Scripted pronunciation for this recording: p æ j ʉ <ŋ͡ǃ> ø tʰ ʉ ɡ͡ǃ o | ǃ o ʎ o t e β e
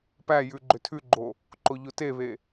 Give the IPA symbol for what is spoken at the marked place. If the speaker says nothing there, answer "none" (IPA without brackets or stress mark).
ɡ͡ǃ